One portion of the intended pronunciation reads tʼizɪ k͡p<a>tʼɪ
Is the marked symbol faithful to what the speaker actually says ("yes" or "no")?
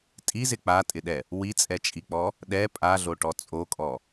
yes